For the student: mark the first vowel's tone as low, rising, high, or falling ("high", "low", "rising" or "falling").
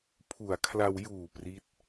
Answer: low